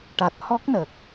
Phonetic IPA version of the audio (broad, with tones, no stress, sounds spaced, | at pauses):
ʈ a˨˩ t̚ h ɔ˦˥ k̚ n ə˨˩ k̚